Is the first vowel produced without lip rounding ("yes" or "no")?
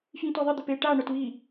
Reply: yes